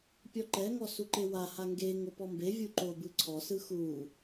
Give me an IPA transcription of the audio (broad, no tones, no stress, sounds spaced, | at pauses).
pʲ ɔ ǃ ɛ ŋ ɔ s u ǃ e w a h a ŋ ɡ e ŋ o p ɔ m b e vʲ u ǃ o b ɯ ǀʰ ɔ s ɯ x u